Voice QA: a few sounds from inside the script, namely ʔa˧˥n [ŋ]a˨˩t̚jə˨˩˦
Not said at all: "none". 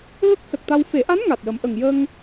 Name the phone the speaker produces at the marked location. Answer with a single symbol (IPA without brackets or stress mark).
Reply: ŋ